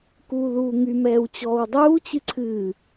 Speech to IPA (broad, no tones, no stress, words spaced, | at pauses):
kuːðuːŋym ɛːwt͡ɕɔːwdˤuːt͡ɕɨ ǀʰɨː